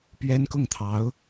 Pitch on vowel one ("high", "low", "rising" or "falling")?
high